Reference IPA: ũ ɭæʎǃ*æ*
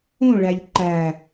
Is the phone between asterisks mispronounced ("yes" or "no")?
no